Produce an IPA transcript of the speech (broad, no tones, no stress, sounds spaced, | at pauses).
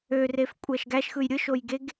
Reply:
ø r e f kʷʼ æ ʃ ɡ æ ʃ x ɯ j ɾʲ ɯ ʃ o j ɡ e ɡ